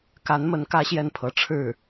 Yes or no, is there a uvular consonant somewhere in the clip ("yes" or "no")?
no